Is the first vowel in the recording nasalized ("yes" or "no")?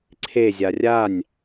no